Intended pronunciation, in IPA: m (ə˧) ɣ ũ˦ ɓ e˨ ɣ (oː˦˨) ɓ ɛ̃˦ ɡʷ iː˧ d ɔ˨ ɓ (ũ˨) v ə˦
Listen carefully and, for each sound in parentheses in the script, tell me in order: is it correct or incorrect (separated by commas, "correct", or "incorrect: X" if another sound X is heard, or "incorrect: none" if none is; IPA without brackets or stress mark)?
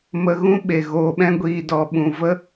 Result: correct, incorrect: oː˧, correct